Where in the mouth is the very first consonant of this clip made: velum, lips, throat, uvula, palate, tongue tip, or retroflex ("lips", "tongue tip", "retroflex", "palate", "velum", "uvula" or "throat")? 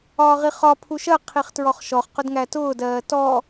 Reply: uvula